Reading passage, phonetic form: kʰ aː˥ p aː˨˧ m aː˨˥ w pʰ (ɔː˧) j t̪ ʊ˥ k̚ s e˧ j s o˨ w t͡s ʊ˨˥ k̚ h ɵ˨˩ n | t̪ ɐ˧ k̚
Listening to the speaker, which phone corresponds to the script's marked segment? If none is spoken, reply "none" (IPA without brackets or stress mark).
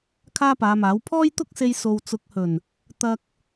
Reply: ɔː˥